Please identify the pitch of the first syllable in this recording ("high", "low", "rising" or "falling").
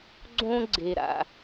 high